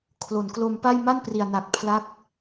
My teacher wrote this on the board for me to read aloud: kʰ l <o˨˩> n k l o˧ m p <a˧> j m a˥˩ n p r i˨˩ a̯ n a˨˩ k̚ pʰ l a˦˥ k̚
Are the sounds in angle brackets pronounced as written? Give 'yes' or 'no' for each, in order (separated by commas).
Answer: no, no